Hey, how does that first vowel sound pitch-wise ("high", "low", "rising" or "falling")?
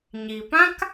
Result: low